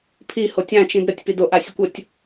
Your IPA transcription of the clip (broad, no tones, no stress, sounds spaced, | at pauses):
pʰ i h o tʲ ã t͡ʃ ĩ d ɾ ə tʲ p i d o ʔ a sʲ ə kʷ ə tʲ